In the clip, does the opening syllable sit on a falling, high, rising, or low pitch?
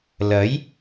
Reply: rising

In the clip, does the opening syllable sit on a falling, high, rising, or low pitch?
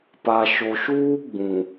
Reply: low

